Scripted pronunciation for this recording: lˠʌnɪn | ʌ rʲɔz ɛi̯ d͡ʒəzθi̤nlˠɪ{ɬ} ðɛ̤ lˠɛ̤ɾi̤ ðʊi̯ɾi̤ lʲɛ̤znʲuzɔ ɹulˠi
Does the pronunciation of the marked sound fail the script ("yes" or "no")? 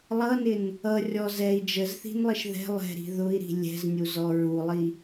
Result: yes